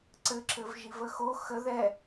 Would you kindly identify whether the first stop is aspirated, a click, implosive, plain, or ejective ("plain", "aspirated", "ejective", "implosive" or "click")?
click